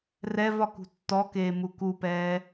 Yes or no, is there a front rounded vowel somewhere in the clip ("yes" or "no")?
no